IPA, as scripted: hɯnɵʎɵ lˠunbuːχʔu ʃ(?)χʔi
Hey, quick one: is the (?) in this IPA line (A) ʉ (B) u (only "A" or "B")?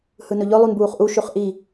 A